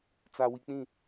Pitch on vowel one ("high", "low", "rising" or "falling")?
low